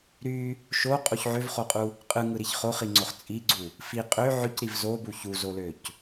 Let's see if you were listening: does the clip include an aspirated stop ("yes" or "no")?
no